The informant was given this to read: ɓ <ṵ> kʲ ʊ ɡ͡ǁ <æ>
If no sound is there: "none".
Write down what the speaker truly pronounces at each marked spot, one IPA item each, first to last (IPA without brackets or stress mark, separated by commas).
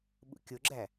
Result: ṵ, æ